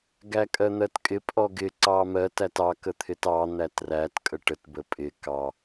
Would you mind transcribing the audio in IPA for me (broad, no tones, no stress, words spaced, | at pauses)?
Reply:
ɡækʼɜn̪ɜtkʼɪ pʼɔɡɪ ǀɑmɜt ætɑ kət̪ʰɪtɑ n̪ætræt kʼəʈət bəpʼɪ kɑ